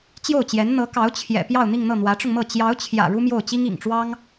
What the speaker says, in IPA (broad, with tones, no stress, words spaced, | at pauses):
t͡ɕjo˥˩ʊ̯t͡ɕjɛ˧˥n n̪ɤ˧˥kɑ˧˥ʊ̯ t͡ɕʰjɛ̰˨˩pjɑ˥˧ʊ̯ n̪i˥˧ŋn̪ɤ˥˩ n̪wä˧˥ʈ͡ʂʊ˧ŋmɤ˥˩ t͡ɕjɑ˧˥ʊ̯t͡ɕʰjä̰˨˩ ɻu˥mjo˥˩ʊ̯t͡ɕi˥ŋ ḭ˨˩ŋʈ͡ʂwɑ˥ŋ